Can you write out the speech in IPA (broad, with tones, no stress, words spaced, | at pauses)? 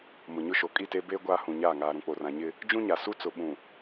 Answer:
mʊ˨ɲʊ˦ʃo˨ kʼi˦˨teː˦ beː˦ ɡʷaː˦hũ˨ɲaː˦˨ ŋaː˨ɾũ˨k͡po˨rã˨ ɲɪ˦ | d͡ʒũ˦ɲa˨su˦ t͡sʊ˨ɓũ˨